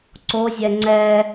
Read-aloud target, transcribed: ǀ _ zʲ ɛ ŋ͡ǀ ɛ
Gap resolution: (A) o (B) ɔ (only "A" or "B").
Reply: A